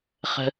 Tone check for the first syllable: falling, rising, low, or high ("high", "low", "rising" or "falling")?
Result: low